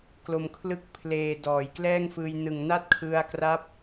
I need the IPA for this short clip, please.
k l o˨˩ m kʰ l ɯ˦˥ k̚ pʰ l eː˨˩ d ɔː˩˦ j k l ɛː˥˩ ŋ f ɯː˧ j n ɯ˨˩ ŋ n a˥˩ t̚ kʰ ɯ˧ a̯ k r a˦˥ p̚

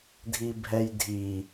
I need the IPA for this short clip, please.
dʱ i bʱ ɛ j dʱ i

